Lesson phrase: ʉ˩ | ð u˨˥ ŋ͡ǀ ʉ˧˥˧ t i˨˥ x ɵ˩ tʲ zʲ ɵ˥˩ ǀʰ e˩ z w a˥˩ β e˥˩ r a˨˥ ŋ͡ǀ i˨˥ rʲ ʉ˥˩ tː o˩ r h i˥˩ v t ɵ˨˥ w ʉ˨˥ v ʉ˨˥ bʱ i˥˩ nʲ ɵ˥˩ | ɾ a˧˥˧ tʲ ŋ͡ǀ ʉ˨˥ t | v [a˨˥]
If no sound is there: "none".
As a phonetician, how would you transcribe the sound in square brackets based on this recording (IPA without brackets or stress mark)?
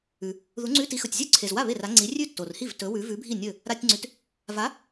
a˨˥